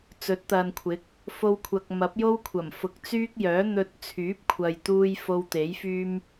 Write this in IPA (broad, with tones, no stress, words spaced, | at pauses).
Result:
t͡sɵ˨˥t̚t̪ɐ˨nkʷʰɪ˨˥k̚ | fo˧wkʷʰɐ˨k̚mɐ˨˥p̚jo˥w kʷʰɐ˨˩mfʊ˨k̚ t͡syː˥k̚jœː˨˥n̪ɵ˧t̚ t͡sʰyː˨˥p̚kʷʰɐ˨j t̪uː˧j fo˧wt̪e˨˥jfyː˥m